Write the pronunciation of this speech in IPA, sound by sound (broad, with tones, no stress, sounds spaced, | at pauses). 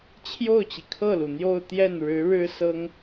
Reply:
t͡ɕʰ j o˥˩ ʊ̯ t͡ɕ i˩ kʰ ɤ˥˩ l u˩ n̪ j o˥˧ ʊ̯ t̪ j ɛ˥˩ n ɻ ɻ̩˧˥ ɻ ɻ̩˥ s ɤ˥ ŋ